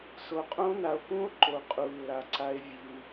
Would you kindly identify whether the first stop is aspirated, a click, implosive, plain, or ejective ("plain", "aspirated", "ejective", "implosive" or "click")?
ejective